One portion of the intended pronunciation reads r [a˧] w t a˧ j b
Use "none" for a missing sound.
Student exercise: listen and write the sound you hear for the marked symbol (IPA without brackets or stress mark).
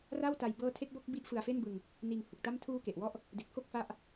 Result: a˥˩